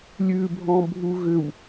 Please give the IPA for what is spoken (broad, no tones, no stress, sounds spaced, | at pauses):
lʲ ʉ bʱ ɔ̃ bʱ u ɣ ʏ w